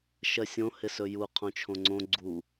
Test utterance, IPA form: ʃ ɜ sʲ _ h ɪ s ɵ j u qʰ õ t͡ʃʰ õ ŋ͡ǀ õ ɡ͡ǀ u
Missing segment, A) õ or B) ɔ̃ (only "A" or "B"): A